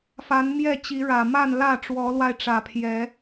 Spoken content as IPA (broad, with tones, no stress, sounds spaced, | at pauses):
f a˨˦ n m j ɛ˥˨ t͡ɕ i˨˦ ɻ ä˨˩ m a˥˨ n l ä˥˨ ʈ͡ʂ w ɔ˨˦ l w a˧ ɪ̯ ʈ͡ʂ ä˨˩ pʰ j ɛ˨˦